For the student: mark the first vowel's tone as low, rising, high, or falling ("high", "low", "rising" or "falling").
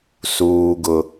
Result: high